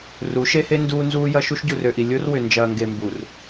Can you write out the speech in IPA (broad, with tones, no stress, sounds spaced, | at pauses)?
r u˨˦ ʃ e˦ h e˦ n d uː˦ n z uː˦ j ɐ˦ ʃ u˦ ʃ ɟ u˨ r ø˨ ʔ i˨ lʲ o˦ r w ʏ˨ n d͡ʒ ɐː˨ ŋ ɡ e˨ m b u˨ r